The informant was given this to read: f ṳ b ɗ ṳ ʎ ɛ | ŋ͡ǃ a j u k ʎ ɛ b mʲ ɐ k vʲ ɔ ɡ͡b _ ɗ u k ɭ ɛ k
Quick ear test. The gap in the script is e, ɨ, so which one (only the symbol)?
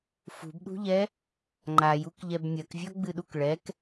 ɨ